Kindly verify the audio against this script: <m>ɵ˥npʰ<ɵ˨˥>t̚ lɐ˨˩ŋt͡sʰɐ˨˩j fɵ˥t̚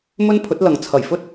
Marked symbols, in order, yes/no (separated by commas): yes, yes